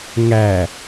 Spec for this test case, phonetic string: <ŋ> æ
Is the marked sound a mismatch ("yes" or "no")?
no